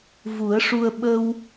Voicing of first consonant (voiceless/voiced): voiced